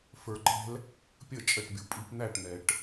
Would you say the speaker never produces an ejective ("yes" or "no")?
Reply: no